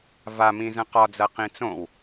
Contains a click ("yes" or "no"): no